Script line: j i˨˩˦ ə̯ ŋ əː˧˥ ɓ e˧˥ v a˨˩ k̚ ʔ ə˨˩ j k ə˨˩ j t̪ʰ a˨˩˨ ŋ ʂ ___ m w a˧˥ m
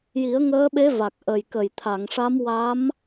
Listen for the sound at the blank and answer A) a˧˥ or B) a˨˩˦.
A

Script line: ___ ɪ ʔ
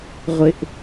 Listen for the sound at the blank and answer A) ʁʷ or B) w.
A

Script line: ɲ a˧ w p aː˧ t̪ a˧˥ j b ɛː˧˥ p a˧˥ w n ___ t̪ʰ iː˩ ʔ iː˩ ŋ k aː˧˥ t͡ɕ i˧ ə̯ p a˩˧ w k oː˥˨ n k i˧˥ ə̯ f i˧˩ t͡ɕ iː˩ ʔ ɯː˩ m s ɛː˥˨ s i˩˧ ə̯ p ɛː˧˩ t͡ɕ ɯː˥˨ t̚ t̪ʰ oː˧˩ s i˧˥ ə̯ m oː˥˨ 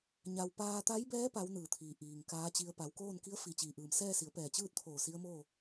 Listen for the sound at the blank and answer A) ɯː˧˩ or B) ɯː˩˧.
A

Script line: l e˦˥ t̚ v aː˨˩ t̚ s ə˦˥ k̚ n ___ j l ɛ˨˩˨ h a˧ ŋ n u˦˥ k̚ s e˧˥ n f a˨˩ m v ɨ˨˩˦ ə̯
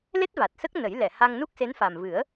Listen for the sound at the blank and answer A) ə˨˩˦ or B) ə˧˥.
A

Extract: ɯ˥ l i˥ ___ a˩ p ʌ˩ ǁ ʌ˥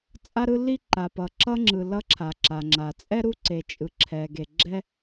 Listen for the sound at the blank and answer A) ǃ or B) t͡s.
A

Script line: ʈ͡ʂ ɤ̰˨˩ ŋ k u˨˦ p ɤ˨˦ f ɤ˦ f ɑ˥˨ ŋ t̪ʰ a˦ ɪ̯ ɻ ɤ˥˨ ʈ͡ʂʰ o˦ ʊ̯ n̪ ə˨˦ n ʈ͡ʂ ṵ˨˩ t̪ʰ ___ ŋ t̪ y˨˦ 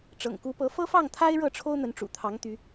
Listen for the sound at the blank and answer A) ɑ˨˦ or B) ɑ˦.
A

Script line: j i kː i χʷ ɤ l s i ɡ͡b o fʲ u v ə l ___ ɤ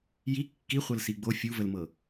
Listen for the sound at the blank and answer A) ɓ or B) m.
B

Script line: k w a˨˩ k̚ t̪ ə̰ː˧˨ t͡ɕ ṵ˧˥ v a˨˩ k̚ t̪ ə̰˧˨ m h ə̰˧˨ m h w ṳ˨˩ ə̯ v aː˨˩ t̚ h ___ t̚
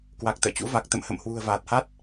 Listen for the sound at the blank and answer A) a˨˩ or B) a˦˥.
B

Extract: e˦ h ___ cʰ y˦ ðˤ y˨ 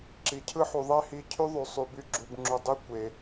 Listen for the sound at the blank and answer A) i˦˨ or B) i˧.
B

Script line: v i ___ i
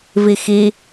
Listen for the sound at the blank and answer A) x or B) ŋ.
A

